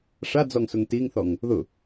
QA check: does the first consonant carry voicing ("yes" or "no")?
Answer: no